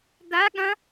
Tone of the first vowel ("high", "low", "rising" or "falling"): rising